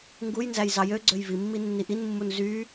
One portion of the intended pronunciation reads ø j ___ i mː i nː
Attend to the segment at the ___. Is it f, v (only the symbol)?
v